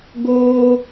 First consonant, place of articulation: velar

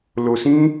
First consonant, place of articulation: alveolar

